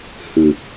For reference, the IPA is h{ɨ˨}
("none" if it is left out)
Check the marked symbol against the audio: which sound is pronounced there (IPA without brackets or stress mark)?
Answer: ɨ˨